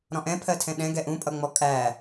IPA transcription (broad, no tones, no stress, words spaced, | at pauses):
ɾɔ̃ʔɛ̃pʰɜtʰɛ̃ ɗɛ̃ɡɛ ʔũpʼʌŋ͡mɔ kʼæ